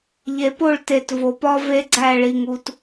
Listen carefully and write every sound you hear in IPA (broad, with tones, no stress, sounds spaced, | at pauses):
ʎ e˨ p o˦˨ ɭ t e˨ t v o˨ p ɒ˦ v e˦ ɡ͡ǀ æ˦˨ ɭ i˨ ŋ u˦ t